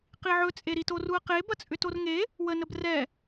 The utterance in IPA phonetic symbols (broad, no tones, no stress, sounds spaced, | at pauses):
q i ʕ ɵ t͡sʼ e ɾ i t o r u ɐ̯ q e b ɐ t͡sʼ ʏ t o r ŋ e | w ə n ə b r ɛ